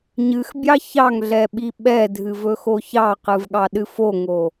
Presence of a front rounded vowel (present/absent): absent